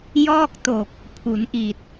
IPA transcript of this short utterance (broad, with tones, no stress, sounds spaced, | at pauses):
j ɔː˥˩ k̚ t o˨˩ k̚ | pʰ u˩˦ n ʔ i˨˩ t̚